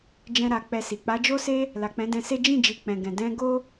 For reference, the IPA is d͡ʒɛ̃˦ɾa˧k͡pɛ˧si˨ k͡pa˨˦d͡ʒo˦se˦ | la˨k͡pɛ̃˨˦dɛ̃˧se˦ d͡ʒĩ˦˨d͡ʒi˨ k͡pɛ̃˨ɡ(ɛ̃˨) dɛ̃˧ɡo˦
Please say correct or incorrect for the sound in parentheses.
correct